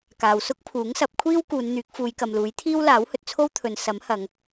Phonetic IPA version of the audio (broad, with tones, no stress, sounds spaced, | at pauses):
k aː˨ w s ʊ˥ k̚ pʰ uː˨˥ ŋ s ɐ˨˥ p̚ kʷʰ iː˥ w k uː˨˧ n n̪ yː˨˥ k̚ f uː˨˧ j k ɐ˨ m l uː˨˥ j t̪ʰ iː˥ w l aː˨˥ w h ɵ˨ t̚ t͡sʰ o˥ w t̪ʰ ɵ˨˧ n s ɐ˨˥ m h ɐ˨˧ ŋ